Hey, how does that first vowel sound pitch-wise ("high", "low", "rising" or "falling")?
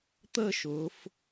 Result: falling